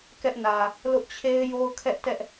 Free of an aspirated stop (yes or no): no